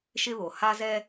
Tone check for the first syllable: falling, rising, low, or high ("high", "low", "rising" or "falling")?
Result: high